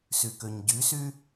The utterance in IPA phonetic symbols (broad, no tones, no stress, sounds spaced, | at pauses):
s y k ø ɲ ɟ y s y